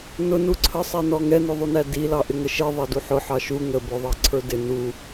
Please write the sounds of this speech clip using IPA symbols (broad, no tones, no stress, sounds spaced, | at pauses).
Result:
n ʊ n u ǀʰ ə sˤ ɛ n ɔ ŋ ɛ n ʊ ðˤ u n æ d i l ɑ ʔ ɪ ŋ ə ʃ i ðˤ ɑ d u ħ ʊ ħ ɑ ʃ u ŋ ə b ʊ ðˤ ɑ ǀʰ ə˞ d ɪ n u